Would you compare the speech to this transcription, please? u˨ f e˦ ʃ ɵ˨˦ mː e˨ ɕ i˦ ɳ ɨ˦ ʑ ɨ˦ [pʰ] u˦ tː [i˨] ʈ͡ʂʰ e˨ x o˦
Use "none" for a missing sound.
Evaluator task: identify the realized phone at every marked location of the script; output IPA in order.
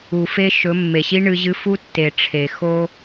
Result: f, e˨

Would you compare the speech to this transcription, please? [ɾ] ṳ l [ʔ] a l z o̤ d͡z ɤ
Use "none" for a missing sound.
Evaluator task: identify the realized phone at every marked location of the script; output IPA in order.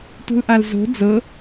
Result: t, ʔ

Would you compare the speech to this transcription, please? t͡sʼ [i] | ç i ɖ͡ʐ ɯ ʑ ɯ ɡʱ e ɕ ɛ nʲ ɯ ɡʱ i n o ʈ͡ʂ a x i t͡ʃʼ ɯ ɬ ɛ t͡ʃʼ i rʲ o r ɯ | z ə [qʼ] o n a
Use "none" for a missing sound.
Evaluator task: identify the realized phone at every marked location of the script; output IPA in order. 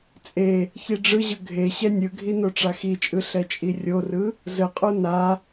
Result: e, qʼ

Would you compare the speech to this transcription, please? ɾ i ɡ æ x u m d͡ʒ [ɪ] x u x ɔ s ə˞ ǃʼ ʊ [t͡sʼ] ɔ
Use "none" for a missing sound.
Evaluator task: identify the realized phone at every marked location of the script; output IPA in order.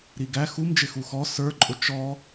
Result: ɪ, t͡ʃ

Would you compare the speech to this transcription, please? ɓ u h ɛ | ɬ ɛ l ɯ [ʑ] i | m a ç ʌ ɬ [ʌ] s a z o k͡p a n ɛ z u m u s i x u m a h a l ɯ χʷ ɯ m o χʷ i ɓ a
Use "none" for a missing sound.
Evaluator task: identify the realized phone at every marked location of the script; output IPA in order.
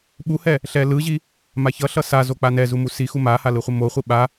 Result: ʑ, ʌ

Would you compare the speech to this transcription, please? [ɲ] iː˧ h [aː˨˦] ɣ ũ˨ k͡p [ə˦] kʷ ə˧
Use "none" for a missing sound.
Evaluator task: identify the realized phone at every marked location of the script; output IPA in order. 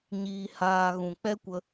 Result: ɲ, aː˧, ɛ˦

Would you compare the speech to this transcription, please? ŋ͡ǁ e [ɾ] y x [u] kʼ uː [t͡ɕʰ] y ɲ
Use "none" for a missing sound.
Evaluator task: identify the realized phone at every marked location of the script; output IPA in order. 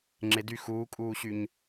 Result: d, uː, ɕ

